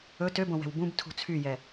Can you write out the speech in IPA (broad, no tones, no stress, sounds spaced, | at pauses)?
ɵ t ø b õ w ɛ̤ w b ũ b tʰ ṳ t͡sʰ y j ɛ